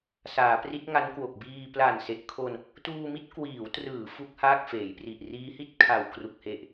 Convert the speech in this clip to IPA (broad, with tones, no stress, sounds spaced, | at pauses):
s aː˩˦ p r i˦˥ t̚ ŋ a˦˥ n k w o˨˩ k̚ b iː˧ p l a˨˩ n s e˨˩ ʔ kʰ o˧ n | t uː˧ m i˥˩ t̚ k w iː˩˦ w t r ɯː˩˦ f u˦˥ k̚ h aː˥˩ k̚ f eː˩˦ j p r i˨˩ ʔ r iː˦˥ h i˥˩ t̚ kʰ a˨˩ w k r u˨˩ k̚ h e˨˩ ʔ